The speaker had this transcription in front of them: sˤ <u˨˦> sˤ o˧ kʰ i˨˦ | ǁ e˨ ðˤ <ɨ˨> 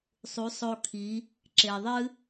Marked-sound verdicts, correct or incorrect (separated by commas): correct, incorrect